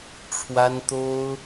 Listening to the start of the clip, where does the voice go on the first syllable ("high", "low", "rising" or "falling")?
high